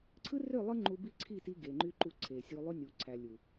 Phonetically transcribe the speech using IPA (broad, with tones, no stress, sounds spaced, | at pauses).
ǀʰ ɯ˦ r ø˦˨ lˠ ɯ˦ ŋ͡ǃ u˦ b i˦ ǀʰ i˦˨ t i˦ ɡ e˨ ŋ͡ǃ y˦ ǃ u˦ ǀʰ e˨ sʲ u˦ lˠ y˦ nʲ u˨ ǀʰ æ˨ lʲ u˨